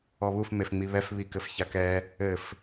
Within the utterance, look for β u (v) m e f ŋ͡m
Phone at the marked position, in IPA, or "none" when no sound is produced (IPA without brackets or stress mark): f